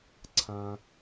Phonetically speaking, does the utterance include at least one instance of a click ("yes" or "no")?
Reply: yes